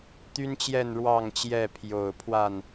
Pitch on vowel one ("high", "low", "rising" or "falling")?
high